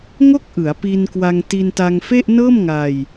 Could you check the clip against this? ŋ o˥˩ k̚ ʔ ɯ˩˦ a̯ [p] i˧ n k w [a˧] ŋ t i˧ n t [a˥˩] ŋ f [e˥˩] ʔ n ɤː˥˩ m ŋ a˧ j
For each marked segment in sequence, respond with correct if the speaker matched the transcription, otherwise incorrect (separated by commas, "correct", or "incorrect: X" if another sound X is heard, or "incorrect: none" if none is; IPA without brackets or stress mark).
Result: correct, correct, incorrect: a˧, correct